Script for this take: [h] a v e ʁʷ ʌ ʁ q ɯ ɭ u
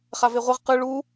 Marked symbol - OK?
no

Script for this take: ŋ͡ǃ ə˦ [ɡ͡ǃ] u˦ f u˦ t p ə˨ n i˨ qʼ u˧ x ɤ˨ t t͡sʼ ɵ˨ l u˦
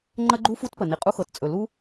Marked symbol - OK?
yes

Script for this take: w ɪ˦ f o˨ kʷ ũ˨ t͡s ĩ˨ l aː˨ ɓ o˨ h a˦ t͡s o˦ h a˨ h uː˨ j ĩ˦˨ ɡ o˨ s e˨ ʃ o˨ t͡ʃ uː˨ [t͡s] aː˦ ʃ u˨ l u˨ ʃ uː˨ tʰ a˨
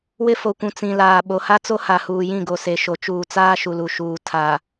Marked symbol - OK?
yes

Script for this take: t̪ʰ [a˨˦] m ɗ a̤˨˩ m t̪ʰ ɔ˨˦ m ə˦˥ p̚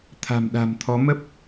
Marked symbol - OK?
no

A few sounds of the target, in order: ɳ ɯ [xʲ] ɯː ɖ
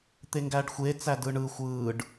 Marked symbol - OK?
no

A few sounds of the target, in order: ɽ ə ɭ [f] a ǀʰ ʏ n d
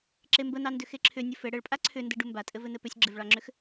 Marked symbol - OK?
no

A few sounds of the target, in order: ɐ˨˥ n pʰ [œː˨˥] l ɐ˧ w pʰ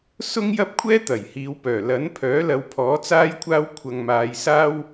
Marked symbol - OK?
yes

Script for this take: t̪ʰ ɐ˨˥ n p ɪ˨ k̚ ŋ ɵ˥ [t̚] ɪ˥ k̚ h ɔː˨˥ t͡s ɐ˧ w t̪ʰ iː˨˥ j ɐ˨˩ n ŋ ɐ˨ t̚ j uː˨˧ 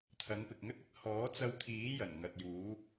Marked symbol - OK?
yes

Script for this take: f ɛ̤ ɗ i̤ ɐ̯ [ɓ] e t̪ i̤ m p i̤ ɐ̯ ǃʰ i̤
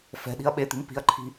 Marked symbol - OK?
yes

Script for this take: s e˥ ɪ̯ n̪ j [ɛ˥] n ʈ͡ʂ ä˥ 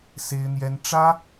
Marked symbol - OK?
yes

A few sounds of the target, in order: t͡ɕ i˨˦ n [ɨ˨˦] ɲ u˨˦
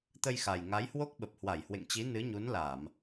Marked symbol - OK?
yes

